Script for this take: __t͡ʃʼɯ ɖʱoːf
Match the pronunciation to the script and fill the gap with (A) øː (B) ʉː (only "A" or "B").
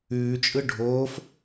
B